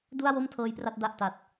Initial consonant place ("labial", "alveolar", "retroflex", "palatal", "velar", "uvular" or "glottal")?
alveolar